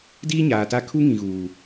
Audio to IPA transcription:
diː˦ɲaː˨ta˦ kʰu˦ŋĩ˨ɣuː˨

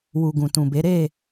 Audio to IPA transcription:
wu˨ɡũ˨tũ˨be˨˦ ɾe˦˨

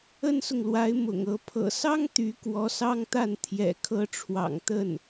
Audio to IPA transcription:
ə˥nsʊ˨ŋlwa˧˥ɪ̯ mʊ̰˨˩ŋɤ˧˥ pʰɤ̰˨˩sɑ˥ŋ t̪y˧˥ kwɔ˧˥sɑ˥ŋt̪a˥˩n t̪ʰjɛ̰˨˩ kʰɤ˥ ʈ͡ʂʰwɑ̰˨˩ŋ t̪ə˥˩n

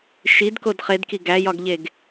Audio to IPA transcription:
ʃidkod χedki ɡæjɒɡʎeɡ

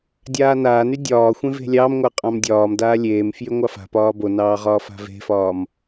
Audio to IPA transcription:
dʲaːnaːny dʲɒːxʷẽ ve̤lʲɑmŋʷa qʼɑ̃mdʲɒːmdaː lʲeːmfjy ŋʷɑfa̤pɒː bonɑː ʁɒːfa̤ve̤fɒːm

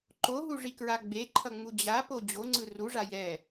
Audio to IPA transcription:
ǃoɦuʐikɹa ɡ͡beǃʰʌŋ͡mu d͡ʑapo d͡ʑoŋ͡ǀɯ ruʐa jɛ

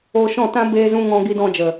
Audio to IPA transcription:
oː˧ʃɔ̃˦˨tã˦ beː˧zũ˧ ŋɔ̃˧ɡi˧dɔ̃˧d͡ʒə˨

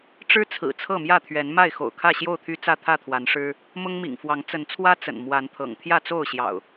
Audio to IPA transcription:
ʈ͡ʂɻ̩˦t͡sʰɹ̩˨˩ t͡sʰɤ˥˨mjä˥˨t̪ʰɥɛ˨˦n ma˥˨ɪ̯ xo̰˨˩ʊ̯kʰä˥˨ɕjo˥˨ʊ̯t̪ʰy˦ t͡sä˥˨t̪ʰä˥˨t̪ʰwa˨˦n ʂɻ̩˦ | mʊ˦ŋmḭ˨˩ŋfwɑ˨˦ŋ t͡sə˨˦nt͡sʰwä˦ t͡sə̰˨˩n mwa˨˦nt̪ʰɤ̰˨˩ŋ t̪ʰjä˥˨t͡so˥˨ʊ̯ɕjɑ̰˨˩ʊ̯

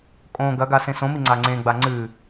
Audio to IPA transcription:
kʼõ ɡɐɡa sẽsõmi ŋ͡ǀaŋ͡ǀẽɡ͡ba ŋ͡ǀɨ

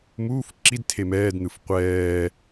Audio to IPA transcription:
muːf ǁidtʰe mɛːdn̪ɯf qʷɛː

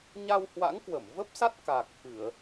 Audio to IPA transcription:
ɲa˧whwa̰˧˥ŋkwə˧˩m və˦˥p̚sa˦˥t̚ ka˨˩k̚ fɨ˧˩˨ə̯

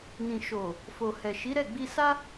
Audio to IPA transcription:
nĩ˨ʃo˨ | fo˨hɛ˨ʃi˨˦ ɾɛ˦˨ɡ͡bi˧sa˦

